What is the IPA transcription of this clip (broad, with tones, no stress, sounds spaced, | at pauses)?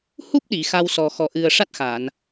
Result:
h u˦˥ p̚ ɗ i˨˩˨ x a˧ w s ɔ˨˩ x ɔ˨˩ ʔ ɨ˨˩ ə̯ ʂ a˦˥ t̚ x a˨˩˨ n